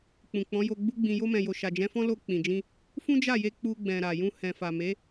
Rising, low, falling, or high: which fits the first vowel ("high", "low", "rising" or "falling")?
low